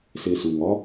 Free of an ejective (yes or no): yes